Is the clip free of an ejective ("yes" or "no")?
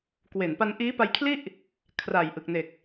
yes